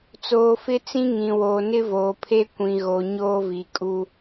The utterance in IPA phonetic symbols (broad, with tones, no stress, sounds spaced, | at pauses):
t͡s oː˨ f ɪ˦ t͡s ĩ˦ ŋ ĩ˨ w oː˨ n ɪ˦ v oː˨ pʰ e˦ kʷ ĩ˨ ɣ o˨ ɲ oː˦ v i˨ kʼ u˦